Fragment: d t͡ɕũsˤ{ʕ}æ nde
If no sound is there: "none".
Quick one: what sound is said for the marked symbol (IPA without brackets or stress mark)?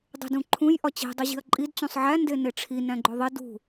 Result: ʕ